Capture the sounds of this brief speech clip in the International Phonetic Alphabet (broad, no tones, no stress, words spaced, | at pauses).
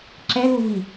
ǁɛ luvi